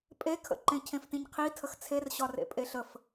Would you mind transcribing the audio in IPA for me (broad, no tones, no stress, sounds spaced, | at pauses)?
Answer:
pʼ e kʰ ə̰ ǃ ẽ cʰ ẽ f t ĩ ɲ qʰ i tʰ ə x t͡sʰ e r ɕ ɒ r ḛ pʼ e ɬ ə f